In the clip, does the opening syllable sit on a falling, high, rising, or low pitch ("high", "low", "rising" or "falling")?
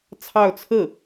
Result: falling